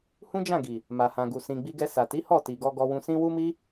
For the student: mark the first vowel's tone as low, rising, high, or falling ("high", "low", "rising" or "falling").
high